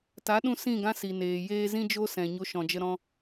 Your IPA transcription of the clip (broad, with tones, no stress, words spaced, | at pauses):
ta˨˦ɗũ˧ sĩ˦˨ɡã˦si˨ neː˨jeː˦ zĩ˦d͡ʒo˦sɛ̃˨ ɲo˦ʃɔ̃˧d͡ʒə˦ ɾɔ̃˦